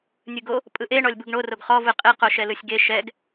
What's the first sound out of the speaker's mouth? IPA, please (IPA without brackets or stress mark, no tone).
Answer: nʲ